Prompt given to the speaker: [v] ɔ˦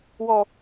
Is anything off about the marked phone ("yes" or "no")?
yes